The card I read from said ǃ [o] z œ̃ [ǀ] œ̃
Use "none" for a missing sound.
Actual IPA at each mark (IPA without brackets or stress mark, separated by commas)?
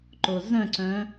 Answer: o, ǀ